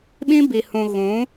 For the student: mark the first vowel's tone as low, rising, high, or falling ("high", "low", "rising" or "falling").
high